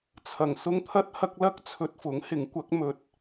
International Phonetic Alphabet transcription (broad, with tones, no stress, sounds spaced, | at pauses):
t͡sʰ ɐ˨˩ ŋ s ʊ˧ ŋ t̪ʰ ɐ˧ t̚ h ɐ˧ k̚ l ɐ˥ k̚ t͡sʰ ɵ˧ t̚ f ʊ˨˥ ŋ h ɪ˨˥ ŋ kʷ ɐ˨˥ k̚ m ɵ˨ t̚